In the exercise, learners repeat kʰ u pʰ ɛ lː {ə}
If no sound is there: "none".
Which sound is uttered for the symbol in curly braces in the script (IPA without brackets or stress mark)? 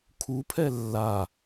a